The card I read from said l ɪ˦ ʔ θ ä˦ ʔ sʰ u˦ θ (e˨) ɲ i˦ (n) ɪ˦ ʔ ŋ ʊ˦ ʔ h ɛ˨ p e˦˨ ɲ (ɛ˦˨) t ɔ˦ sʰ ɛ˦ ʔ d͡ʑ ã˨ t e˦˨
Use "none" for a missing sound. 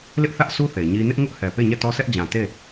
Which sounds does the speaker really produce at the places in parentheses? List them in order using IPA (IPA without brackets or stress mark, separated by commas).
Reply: e˨, n, ɛ˦˨